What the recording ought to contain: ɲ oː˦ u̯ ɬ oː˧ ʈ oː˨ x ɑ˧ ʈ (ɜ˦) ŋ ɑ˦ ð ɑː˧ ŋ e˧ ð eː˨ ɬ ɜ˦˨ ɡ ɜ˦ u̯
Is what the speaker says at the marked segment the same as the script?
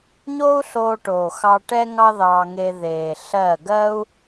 no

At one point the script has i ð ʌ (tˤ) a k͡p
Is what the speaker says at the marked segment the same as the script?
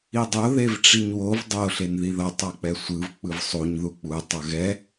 yes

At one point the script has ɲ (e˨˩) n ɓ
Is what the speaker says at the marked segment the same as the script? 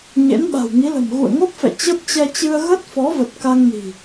no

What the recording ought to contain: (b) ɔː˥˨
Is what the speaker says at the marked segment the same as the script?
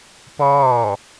no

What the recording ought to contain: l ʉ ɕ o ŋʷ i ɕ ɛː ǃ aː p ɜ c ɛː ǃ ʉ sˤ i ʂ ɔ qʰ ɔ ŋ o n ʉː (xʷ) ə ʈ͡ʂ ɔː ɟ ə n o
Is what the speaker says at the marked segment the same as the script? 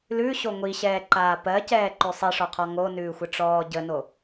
yes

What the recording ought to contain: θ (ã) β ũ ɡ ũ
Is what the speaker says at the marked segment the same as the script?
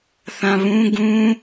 yes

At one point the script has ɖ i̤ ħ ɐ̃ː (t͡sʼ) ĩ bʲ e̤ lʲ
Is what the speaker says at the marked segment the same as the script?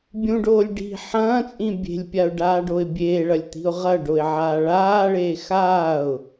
yes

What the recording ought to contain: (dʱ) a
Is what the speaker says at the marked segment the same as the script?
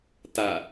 no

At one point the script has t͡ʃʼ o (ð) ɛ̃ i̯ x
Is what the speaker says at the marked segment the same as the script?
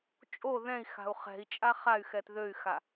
yes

